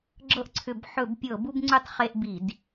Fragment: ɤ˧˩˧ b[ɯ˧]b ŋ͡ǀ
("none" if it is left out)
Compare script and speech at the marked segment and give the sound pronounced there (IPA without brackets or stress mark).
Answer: u˧